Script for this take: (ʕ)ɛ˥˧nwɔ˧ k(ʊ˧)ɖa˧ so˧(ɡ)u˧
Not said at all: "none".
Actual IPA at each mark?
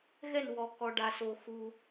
ɣ, ɔ˧, x

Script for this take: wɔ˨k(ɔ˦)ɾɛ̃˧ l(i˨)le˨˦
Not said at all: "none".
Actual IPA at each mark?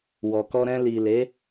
ɔ˧, i˨

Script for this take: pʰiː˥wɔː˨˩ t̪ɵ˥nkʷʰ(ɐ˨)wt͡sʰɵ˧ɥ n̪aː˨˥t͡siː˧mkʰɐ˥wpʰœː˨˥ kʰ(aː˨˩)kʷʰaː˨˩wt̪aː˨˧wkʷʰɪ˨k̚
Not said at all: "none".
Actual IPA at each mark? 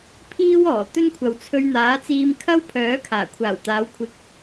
ɐ˨, aː˨˩

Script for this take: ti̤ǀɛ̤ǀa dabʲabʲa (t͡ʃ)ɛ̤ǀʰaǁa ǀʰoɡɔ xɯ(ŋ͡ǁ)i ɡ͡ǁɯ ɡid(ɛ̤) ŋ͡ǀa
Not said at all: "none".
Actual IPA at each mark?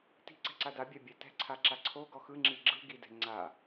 t, ŋ͡ǁ, ɛ̤

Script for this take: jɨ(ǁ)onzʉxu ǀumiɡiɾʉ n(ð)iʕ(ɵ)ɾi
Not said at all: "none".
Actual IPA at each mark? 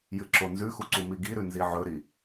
ǁ, z, ɵ

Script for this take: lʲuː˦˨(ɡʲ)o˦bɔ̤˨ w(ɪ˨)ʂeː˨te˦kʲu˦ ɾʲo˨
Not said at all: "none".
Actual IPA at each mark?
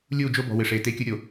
d͡ʒ, ɪ˨

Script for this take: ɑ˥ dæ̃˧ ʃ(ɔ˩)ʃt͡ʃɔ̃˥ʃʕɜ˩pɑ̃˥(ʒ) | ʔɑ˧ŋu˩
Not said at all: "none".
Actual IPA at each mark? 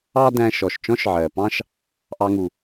ɔ˩, ʃ

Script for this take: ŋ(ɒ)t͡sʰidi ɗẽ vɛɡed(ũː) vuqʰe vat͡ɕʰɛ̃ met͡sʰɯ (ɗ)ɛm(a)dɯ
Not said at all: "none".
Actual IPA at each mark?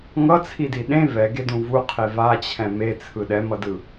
ʌ, ũ, ɗ, ʌ

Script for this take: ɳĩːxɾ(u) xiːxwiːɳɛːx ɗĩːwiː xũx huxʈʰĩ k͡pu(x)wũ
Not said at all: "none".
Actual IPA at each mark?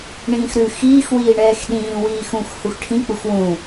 ʉ, x

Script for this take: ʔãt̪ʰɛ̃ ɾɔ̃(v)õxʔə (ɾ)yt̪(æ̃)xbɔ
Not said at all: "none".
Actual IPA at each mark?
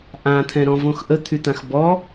v, t̪ʰ, ã

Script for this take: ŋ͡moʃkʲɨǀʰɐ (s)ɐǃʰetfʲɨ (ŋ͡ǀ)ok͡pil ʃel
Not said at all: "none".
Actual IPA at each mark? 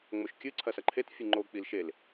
s, ŋ͡ǃ

